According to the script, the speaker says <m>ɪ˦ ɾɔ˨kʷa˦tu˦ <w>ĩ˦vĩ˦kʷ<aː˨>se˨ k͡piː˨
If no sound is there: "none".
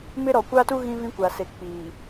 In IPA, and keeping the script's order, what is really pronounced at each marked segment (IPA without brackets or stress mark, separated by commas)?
m, ɣ, a˨